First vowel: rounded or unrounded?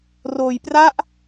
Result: rounded